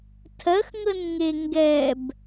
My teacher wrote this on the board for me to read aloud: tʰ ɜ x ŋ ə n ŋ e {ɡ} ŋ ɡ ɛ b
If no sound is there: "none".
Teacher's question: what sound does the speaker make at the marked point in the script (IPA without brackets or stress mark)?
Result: none